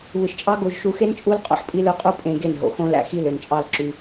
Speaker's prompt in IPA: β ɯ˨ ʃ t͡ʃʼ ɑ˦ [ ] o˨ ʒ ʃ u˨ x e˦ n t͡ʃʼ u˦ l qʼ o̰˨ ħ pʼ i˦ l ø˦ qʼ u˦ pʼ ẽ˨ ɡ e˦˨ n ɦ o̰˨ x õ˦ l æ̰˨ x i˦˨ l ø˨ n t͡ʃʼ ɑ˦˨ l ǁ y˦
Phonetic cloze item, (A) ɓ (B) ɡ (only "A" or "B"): B